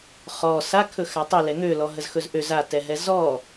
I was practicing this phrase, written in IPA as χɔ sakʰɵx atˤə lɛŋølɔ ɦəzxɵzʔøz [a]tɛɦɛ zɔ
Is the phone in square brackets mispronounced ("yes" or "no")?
no